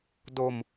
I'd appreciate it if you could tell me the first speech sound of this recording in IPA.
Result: d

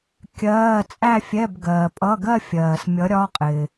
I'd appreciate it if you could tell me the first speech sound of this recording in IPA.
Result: kʲ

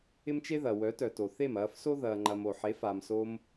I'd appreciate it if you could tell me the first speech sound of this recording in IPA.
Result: ɪ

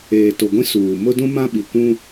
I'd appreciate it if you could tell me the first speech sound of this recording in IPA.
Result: eː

